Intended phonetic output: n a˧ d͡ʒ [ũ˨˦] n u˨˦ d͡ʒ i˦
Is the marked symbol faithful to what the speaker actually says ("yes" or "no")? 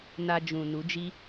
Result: no